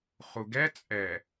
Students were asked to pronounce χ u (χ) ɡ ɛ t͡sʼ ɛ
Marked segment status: incorrect: none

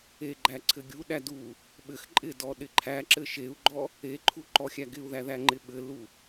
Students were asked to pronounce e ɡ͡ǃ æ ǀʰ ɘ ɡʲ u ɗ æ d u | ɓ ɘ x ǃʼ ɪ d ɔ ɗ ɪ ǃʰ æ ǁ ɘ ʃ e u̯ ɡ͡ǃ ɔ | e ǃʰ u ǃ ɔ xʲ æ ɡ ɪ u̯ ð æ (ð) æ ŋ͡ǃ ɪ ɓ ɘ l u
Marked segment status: correct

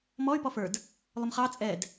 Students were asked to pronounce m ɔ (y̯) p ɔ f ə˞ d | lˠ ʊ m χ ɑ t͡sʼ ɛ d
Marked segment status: correct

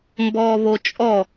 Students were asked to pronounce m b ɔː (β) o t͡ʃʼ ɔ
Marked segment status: correct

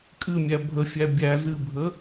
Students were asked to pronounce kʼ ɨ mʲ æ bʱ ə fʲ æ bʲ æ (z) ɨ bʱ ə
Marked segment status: correct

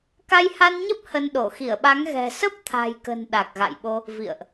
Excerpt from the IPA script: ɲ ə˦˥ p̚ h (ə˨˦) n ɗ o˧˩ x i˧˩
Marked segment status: incorrect: ə˧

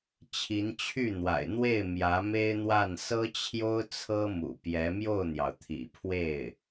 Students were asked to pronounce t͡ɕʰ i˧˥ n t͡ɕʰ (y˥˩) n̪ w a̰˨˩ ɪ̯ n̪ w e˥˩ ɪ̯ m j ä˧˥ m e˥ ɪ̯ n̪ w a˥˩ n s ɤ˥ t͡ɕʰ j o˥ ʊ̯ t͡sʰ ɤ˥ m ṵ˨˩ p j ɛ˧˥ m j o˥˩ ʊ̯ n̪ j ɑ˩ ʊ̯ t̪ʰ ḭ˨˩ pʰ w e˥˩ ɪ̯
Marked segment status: correct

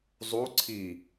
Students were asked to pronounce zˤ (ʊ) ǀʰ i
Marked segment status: incorrect: u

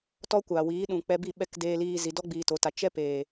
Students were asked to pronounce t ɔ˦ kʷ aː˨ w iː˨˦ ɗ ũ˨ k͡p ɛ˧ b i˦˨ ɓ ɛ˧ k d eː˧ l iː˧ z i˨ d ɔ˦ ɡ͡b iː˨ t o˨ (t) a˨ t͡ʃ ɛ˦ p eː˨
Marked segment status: correct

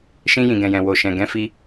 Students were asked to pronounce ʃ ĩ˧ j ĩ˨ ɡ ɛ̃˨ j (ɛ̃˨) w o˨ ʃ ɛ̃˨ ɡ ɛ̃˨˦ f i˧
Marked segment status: correct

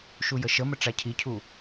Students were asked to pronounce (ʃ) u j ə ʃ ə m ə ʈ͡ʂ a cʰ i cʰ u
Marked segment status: correct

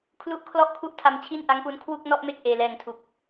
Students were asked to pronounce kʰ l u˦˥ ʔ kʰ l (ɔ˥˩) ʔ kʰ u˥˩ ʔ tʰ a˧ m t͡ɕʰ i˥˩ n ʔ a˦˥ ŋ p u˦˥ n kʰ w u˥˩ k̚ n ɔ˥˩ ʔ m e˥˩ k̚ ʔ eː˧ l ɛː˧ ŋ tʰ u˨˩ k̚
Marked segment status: correct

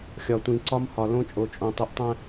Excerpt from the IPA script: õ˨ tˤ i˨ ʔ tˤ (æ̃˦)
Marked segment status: correct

